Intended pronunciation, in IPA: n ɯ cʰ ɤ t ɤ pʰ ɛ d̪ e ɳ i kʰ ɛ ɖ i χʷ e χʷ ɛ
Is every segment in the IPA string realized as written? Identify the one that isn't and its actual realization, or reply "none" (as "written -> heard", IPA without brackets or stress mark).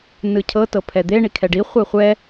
none